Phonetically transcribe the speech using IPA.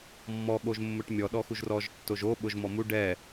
mː ɔ ɠ o ʒ mː ʊ ʈ mʲ ɔ ɗ ɔ x u ʒ r ɔ ʒ tː o ʒ o ɓ ʊ ʒ m ɔ m u ɖ ɛ

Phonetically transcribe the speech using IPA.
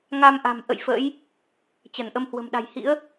ŋ a˧ m ʔ a̤˨˩ m ʔ ə̰˧˨ j f ə̰˧˥ j | t͡ɕ ə˧˩ n ʔ ə˧ m h w ə̤˨˩ m ɗ a̤˨˩ j h ḭ˧˥ ə̯

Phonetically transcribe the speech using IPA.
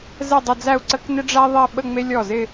z ɛ˥˧ dˤ ɪ˥˧ d͡z æ˥˧ u̯ ǀ ə˥ k n ɪ˥ ɖ͡ʐ æ˥ ðˤ ɛ˥˧ ɓ ə˥˧ ŋ͡m e˥ lʲ ɔ˥˩ z ɪ˥˧

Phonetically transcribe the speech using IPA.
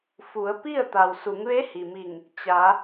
f u˩˧ ə̯ p i˥˨ ə̯ t̪ a˩ w s u˩˧ ŋ ʋ e˧˥ h i˩ m i˧˩ ŋ | t͡ɕ a˩˧

